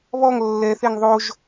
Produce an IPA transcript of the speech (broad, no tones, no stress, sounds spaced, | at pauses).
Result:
β ɔ ŋ lː ɛ θ e ŋ ðˤ o ʒ